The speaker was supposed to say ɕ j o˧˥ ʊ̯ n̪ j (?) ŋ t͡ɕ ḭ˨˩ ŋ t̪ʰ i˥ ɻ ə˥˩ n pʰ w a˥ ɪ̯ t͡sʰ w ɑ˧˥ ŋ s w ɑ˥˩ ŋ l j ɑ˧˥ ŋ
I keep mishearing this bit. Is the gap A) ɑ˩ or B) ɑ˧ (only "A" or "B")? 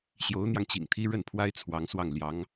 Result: B